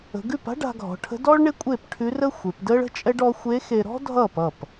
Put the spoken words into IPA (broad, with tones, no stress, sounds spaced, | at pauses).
ə̤˩˧ ɡ ʉ˥˩ p a̤˥ ɖ a̤˧ ɡʱ ɔ̤˩˧ ʈʰ ə̤˧˥ d ɔː˥ ɭ ɳ e˥ kʷʼ e˥˩ p ʈʰ ʉ˧˥ r ə˥ xʷ e˩˧ p d əː˥ ɭ ə̤˥ t͡ʃʼ ɛ˥ ɖ ɔ˧˥ xʷ e˧˥ x e˧ ɾ ɔ̤˥ dʱ ʌː˥˩ p ʌ˥˩ p